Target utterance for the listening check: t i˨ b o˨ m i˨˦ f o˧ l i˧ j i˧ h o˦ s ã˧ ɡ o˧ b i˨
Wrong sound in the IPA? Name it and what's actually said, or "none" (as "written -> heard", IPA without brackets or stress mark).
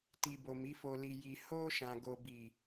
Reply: s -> ʃ